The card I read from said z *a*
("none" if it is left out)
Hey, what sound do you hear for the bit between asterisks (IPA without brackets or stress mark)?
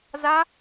a